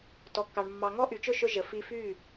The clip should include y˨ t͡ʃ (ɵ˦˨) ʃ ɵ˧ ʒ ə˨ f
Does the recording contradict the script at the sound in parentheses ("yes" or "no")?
no